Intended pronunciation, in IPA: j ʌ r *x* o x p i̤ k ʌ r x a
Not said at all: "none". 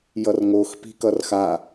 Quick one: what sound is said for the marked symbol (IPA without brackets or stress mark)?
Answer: ŋ